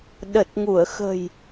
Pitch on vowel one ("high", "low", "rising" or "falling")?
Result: low